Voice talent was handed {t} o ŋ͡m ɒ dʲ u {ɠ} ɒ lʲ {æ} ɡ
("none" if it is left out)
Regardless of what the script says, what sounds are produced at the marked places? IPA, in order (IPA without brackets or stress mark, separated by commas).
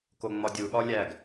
k, ɠ, æ